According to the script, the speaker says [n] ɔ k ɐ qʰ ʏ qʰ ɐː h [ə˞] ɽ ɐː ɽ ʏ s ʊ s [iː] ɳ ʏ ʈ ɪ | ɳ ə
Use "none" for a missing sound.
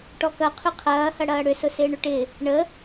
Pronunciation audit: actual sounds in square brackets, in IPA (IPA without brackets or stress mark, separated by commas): ʈ, ɐ, ɪː